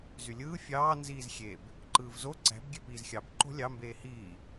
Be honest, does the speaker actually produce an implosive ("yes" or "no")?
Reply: no